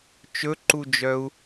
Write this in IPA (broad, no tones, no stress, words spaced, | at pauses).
t͡ʃɵǃud͡ʒœu̯